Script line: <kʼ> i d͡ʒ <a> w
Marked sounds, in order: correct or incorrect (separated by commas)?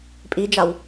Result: incorrect, correct